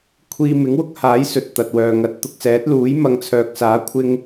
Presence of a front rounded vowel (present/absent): present